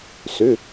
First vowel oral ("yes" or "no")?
yes